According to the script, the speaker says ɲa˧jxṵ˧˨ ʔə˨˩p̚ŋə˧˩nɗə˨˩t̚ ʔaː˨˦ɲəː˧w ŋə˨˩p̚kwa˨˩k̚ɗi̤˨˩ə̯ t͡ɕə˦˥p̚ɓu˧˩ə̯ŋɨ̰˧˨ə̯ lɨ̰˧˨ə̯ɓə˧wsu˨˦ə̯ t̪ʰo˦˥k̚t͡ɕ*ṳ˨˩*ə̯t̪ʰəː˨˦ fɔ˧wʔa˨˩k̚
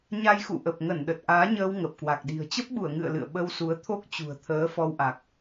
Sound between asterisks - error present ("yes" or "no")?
no